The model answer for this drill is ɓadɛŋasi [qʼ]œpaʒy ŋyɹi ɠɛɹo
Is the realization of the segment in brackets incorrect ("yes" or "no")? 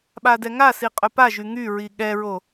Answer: no